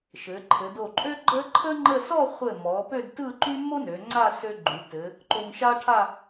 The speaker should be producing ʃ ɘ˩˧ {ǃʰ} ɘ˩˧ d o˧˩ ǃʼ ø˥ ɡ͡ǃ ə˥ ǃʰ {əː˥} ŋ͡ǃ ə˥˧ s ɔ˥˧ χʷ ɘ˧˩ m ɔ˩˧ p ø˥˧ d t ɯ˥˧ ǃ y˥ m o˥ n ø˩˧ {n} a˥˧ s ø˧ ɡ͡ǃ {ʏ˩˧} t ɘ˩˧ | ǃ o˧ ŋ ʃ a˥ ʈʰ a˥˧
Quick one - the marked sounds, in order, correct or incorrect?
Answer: correct, incorrect, incorrect, incorrect

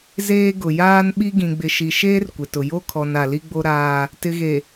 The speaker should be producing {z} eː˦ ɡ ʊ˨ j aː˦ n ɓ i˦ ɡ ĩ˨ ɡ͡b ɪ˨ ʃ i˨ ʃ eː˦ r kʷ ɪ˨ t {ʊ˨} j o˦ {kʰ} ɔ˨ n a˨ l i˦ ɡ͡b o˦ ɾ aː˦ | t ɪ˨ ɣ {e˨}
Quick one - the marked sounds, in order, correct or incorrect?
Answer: correct, correct, correct, correct

